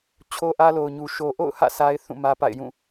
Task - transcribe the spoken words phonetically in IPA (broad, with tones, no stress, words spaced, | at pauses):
t͡ɕʰo˦ʔä˦ lo˨ʊ̯ɲu˨ ʃo˨ʔo̰˦˨ʊ̯hä̰˦˨ sa˦ɪ̯θũ˦˨ mä˦pa̰˦˨ɪ̯jũ˦˨